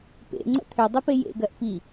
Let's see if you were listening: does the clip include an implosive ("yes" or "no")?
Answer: no